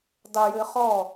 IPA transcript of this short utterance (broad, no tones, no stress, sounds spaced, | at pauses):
dˤ ɛ j ɘː χ ɔ